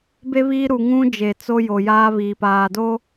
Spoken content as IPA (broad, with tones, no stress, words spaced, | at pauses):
be˦ βiː˦ɾu˨ ŋũ˦d͡ʒe˨ t͡so˦jo˨ jaː˦βiː˨paː˨ do˦